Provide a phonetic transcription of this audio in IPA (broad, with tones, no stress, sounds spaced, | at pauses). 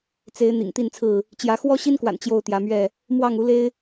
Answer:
t͡s e˨˦ ɪ̯ n̪ ḭ˨˩ ŋ t̪ i˥˨ n t͡sʰ ɹ̩˥˨ | t͡ɕ j ä˨˦ x w ɔ˦ ɕ i˦ n k w a̰˨˩ n t͡ɕ j o˥˨ ʊ̯ t̪ j ä˨˦ m ɥ ɛ˥˨ | m w ɑ˥˨ ŋ u˨˦ l e˦ ɪ̯